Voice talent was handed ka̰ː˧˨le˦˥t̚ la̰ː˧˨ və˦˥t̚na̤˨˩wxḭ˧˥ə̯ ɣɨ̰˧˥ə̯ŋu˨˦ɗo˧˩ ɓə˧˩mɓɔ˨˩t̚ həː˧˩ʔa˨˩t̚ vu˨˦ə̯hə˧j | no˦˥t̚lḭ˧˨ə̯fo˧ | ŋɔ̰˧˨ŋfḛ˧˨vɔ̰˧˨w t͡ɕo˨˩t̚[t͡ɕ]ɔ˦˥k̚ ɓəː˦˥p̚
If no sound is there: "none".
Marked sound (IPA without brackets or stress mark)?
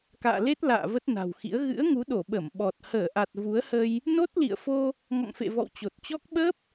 t͡ɕ